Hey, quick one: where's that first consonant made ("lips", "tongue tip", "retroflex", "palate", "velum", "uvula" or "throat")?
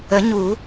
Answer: palate